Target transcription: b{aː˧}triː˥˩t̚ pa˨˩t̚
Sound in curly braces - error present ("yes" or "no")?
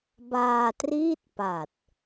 no